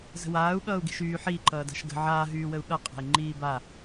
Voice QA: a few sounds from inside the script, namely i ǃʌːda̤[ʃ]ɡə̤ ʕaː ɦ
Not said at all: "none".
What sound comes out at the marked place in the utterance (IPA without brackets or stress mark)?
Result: ʃ